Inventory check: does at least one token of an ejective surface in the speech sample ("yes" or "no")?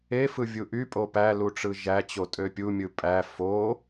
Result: yes